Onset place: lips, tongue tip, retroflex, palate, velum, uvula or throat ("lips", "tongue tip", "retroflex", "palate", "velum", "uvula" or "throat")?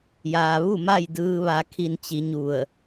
palate